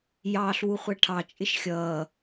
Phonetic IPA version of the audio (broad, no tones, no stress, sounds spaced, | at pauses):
j ɑː ɬ w u χʷ æ ʈʰ ɑ t͡ʃʼ ɪ ʃ xʲ ʌː